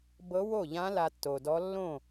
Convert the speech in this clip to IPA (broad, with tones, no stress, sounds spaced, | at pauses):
b ɤ˧˥ w o˥˩ ʎ ã˧˥ l a˧ tː o˩ d ɔ˧˥ lː õ˥˩